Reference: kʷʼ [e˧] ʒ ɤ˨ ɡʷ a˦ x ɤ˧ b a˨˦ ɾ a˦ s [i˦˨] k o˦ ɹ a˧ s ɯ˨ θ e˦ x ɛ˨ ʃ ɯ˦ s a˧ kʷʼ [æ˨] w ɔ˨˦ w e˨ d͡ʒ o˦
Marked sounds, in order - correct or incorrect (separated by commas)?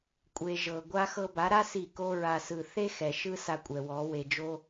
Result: correct, correct, incorrect